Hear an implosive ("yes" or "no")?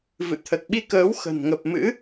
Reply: yes